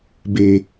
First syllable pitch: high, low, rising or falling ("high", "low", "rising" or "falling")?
low